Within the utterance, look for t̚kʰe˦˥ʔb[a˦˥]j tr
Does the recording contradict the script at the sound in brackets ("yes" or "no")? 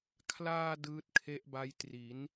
no